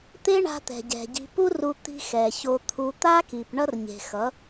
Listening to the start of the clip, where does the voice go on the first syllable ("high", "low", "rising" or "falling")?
high